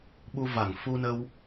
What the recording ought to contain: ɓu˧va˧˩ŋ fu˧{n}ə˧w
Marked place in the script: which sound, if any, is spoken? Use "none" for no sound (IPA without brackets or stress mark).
n